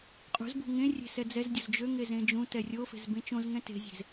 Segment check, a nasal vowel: present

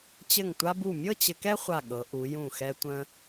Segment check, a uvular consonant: present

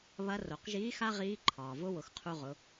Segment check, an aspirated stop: present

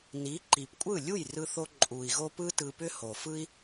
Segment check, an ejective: present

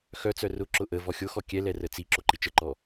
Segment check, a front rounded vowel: present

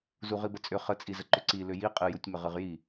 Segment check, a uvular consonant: present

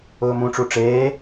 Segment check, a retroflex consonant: present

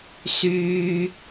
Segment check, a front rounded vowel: present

